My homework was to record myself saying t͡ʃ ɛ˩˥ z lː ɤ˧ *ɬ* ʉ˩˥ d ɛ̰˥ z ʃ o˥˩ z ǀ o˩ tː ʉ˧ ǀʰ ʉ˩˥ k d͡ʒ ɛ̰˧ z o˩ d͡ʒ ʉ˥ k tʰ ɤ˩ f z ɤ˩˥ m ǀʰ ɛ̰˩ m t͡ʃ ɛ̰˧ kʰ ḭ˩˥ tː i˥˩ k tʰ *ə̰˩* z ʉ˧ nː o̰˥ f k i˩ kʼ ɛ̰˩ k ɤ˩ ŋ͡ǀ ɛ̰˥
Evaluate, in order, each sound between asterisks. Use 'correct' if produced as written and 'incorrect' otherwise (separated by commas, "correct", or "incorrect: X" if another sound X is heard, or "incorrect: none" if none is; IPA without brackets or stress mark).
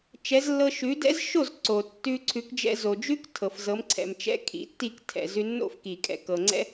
incorrect: ʃ, incorrect: ɛ̰˩